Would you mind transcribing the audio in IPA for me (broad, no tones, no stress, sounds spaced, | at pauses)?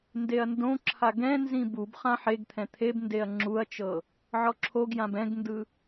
n d e ɐ̯ n d õ ǁʰ a ɡ ɛ̃ n z ĩ b u b χ ã ħ e ɡ t̪ʰ ɛ̃ t̪ʰ e b n d e ɐ̯ ŋ͡ǁ u ɐ̯ t͡ʃ ɤ | ʕ ɔ ǁʰ o ɡ j ã b ɛ̃ ɡ n d ɯ